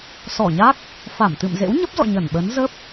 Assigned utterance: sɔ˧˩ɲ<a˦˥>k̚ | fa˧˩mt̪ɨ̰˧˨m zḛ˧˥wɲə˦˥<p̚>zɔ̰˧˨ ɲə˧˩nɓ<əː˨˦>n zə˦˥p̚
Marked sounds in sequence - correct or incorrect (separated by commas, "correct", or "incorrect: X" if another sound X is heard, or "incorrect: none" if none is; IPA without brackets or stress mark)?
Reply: correct, correct, correct